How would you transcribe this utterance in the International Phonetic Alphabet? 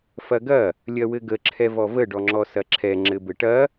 f ɐ ɡ ɐ | lʲ ɐ w ɘ ɡ ə ǁʰ ɛ v ɔ v ə ɖ ɔ ŋ͡ǁ ɔ s ɐ ǁʰ ɛ ŋ͡ǁ ɘ b ɘ ʈ ɐ

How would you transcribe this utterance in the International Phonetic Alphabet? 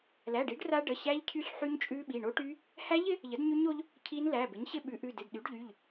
l æ˩˧˩ ɖ i˩˥ ɖ r a˦˥ ɖ ə˩˧˩ ɕ æ˦˥ ʎ cʰ y˦˥ ɬ ħ y˦˥ ɲ t͡ʃʼ ʉ˦˥ ɓ i˩˧˩ ɳ o˦˥ ʈ y˦˥ | h æ˦˥ ʎ ɪ˩˥ | ʎ ə˩˥ d ɲ y˦˥ ɲ o˦˥ ʎ | cʰ i˦˥ n l æ˩˧˩ b ɪ˩˥ ɲ ɕ ɪ˦˥ ɓ ʉ˩˥ ʔ ʉ˩˧˩ d ɪ˩˧˩ d ɗ y˩˥ ɖ ʎ y˩˧˩ ʎ

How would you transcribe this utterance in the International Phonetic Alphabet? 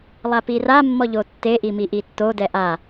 lˠ a p i r a mː ɔ ʎ o tː e ʔ i m i ʔ i tː o d ɛ ʔ a

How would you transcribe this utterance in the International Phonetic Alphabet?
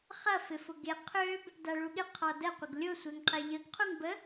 χ ɐ f ɪ f ʊ ɡ e qʰ ø b | d a ɭ u ɠ ɪ qʰ ɔ d ə qʷ ɐ ɡ lʲ ʊ sʷ e ŋ qʰ e ʎ ə ɡ qʰ u ŋ b ə

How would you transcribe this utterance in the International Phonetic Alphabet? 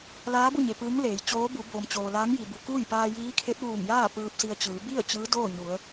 l aː˧˥ b u˥˨ ɲ e˩ p ɯː˧˥ ŋ l eː˩˧ j t͡ɕ oː˧˥ b u˩˧ b oː˩ m t͡ɕ oː˩ l aː˧˥ ŋ j i˩ b u˩ k uː˥˨ j p aː˧ j iː˧˥ kʰ e˧˥ t̚ ʋ uː˧˩ ŋ j aː˥˨ p ɯː˧ p̚ s i˧ ə̯ t͡ɕ ɯː˩˧ b i˥˨ ə̯ t͡ɕ ɯː˧˥ d oː˥˨ ɲ u˩˧ ə̯

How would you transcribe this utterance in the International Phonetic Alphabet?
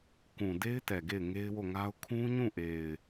k ũ˨ d e˦ ɪ̯ t ɛ˨ ɡ e˦˨ ɪ̯ ŋ e˦ ɪ̯ w o˦˨ ŋ a˦ ʊ̯ kʰ ũ˦ ɲ ũ˦˨ ʔ e˨ ɪ̯

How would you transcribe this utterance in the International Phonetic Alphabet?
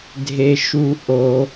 dʱ e˦ ʃ u˦ ʔ o˦

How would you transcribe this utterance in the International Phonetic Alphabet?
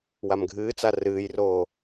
w a m ɡʱ ɨː t͡s a r ɨː j r oː

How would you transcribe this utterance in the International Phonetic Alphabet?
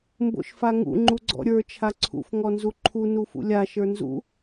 m b o̰ ʃ f a ŋ ṵ ŋ͡ǃ u ɡ͡ǀ ɔ̰ ɾʲ ə˞ t͡ʃʰ a ǀʰ ṵ f ŋ ɔ n z u ǃʰ u n u f ṵ lʲ a ʃ ə˞ n z ṵ

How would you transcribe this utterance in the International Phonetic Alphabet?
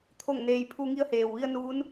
t̪ʰ o˥˨ ŋ n eː˧ j pʰ u˧ ŋ i˧ ə̯ h eː˩ w ʋ i˧ ə̯ n u˧˥ n

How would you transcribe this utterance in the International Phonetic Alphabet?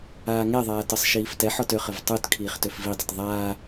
aː ŋ ɛ ðˤ aː t ɤ sˤ ʃ iː f t ɛ ħ ɔ t ø χ ə v tˤ u t kʰ iː χ t ø f v i dˤ ə t ðˤ aː

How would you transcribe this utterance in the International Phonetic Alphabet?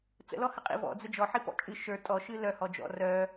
t͡s ə̰ l ɔ h ə qʼ ḭ v ɔ̰ d͡z ə d͡ʒ ɔ ħ i p ɔ̰ t͡ʃʼ ɨ ʃ ə˞ tʼ ɔ ʃ ɨ l œ h ɔ d͡ʒ ɔ̰ r œ

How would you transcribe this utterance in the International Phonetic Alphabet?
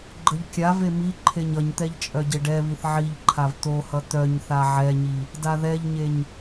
ɡ͡ǃ ə ʎ kʲ a v e m i ǃʰ e ɲ ʌ ɲ t̪ ɛ ʎ t͡ʃʼ œ ɟ e ɖ ɛ β i θ ʕ i ʎ ǃʰ a v t̪ o h ʌ t̪ œ ɲ θ a ʕ ɛ ɲ i | d a ð ɛ ʎ ɲ e ɲ

